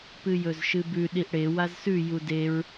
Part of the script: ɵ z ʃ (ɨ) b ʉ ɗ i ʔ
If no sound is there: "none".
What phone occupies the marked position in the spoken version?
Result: ɨ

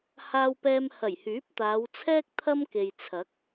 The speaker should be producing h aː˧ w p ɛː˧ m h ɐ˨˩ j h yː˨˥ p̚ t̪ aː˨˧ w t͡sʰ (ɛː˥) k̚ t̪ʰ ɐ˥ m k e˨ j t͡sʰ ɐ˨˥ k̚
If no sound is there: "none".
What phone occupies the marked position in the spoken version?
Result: ɛː˥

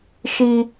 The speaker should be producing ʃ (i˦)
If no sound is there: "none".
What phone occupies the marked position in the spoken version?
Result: i˦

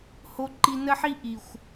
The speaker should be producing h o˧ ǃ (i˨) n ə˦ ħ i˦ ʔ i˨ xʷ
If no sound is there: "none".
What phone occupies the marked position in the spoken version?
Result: i˧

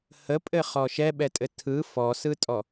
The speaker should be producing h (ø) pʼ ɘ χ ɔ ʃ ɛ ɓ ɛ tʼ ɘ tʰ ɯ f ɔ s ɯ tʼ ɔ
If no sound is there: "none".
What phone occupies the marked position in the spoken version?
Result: ə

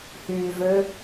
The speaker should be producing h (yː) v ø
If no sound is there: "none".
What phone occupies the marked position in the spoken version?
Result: yː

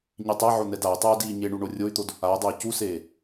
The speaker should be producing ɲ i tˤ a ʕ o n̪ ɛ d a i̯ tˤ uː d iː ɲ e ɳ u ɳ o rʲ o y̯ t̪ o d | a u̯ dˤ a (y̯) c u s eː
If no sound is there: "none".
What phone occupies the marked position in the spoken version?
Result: y̯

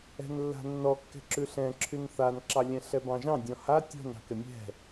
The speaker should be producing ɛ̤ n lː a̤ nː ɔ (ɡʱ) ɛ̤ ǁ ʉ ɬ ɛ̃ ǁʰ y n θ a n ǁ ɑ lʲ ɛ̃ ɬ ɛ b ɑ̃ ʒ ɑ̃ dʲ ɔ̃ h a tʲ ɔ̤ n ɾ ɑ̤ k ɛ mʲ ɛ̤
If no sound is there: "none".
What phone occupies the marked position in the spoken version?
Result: kː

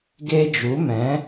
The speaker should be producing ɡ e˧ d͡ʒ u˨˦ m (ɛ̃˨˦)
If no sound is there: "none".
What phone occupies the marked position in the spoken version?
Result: ɛ̃˨˦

